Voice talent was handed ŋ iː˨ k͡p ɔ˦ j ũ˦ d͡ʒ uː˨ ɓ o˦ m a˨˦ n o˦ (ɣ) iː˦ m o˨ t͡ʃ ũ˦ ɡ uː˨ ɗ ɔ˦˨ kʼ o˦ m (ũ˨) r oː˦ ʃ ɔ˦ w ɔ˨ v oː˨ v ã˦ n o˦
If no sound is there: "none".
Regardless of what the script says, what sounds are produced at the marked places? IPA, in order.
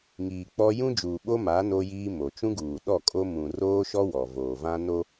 j, ũ˨

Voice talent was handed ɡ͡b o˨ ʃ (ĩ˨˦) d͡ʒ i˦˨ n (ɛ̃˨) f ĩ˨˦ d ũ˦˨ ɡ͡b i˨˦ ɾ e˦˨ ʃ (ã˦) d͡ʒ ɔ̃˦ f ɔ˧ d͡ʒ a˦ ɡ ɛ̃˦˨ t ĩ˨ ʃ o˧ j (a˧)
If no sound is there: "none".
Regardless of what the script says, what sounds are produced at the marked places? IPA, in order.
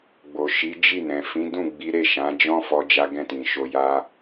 i˨˦, ɛ̃˨, ã˨˦, a˧

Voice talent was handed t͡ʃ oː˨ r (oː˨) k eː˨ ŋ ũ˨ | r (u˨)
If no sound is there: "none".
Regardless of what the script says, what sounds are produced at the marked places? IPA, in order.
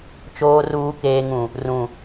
uː˨, ũ˨

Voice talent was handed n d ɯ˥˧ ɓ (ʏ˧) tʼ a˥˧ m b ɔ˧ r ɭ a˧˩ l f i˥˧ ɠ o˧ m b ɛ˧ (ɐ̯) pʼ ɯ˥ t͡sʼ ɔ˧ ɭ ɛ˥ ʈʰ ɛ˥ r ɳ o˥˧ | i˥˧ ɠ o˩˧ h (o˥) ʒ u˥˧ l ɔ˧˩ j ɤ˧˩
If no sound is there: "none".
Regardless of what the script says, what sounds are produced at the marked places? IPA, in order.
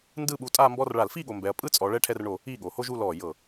u˧, ɐ̯, o˥

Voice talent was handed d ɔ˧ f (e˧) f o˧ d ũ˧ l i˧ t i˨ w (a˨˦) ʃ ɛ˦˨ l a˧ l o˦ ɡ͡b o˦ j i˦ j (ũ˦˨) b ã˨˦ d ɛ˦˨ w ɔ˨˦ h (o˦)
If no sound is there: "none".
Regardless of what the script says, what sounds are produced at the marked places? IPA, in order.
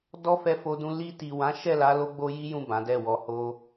ɛ˧, ã˨˦, ũ˦˨, o˧

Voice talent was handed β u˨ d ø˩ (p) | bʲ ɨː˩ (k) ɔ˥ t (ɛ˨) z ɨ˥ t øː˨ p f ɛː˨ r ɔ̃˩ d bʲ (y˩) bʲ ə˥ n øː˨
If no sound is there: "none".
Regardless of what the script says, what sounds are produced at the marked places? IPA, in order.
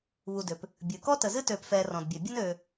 p, k, ə˨, ø˩

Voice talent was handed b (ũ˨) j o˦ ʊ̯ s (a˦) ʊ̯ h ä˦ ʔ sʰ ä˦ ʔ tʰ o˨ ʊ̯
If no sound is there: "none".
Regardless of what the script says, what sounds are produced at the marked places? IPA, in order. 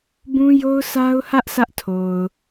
ũ˦, a˦

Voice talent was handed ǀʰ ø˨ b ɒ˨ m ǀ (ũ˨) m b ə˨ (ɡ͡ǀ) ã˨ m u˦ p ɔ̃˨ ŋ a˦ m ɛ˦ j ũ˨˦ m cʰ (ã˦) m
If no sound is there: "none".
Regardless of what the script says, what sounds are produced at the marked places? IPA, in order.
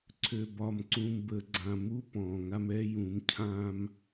ũ˨, ɡ͡ǀ, ã˦

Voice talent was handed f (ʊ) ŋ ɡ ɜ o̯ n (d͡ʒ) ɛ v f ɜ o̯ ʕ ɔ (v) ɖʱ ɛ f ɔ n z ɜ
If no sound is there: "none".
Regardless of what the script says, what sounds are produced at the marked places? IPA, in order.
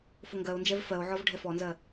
ʊ, d͡ʒ, v

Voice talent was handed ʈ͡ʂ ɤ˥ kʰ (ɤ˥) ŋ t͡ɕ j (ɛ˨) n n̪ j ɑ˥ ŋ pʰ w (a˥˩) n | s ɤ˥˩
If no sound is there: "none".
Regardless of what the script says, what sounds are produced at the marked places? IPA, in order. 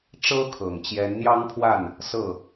ɤ˨˩, ɛ˧˥, a˥˩

